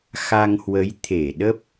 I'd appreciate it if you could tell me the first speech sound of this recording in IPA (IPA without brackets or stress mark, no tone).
x